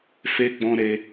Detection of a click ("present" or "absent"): absent